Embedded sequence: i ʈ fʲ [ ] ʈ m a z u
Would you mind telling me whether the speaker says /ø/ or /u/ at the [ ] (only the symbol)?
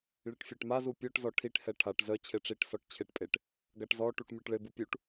ø